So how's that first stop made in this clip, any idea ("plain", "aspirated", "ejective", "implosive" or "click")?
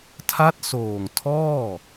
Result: aspirated